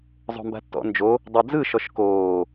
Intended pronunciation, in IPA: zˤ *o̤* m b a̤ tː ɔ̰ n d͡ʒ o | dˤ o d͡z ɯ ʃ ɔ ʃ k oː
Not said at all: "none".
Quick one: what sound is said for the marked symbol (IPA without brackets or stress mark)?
o̤